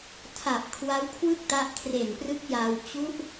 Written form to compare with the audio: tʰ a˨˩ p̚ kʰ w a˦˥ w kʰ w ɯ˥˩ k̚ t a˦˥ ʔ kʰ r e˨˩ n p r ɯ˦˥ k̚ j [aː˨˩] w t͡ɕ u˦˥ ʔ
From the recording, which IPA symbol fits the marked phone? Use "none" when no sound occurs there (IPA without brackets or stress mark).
aː˧